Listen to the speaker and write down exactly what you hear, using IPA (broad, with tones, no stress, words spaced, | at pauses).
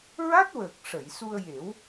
ɹa˦˥t̚wəː˨˩k̚ ʂə˨˩˨j su˧ə̯je˨˩˦w